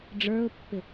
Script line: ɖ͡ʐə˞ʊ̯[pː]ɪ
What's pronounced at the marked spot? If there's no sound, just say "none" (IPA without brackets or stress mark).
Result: pː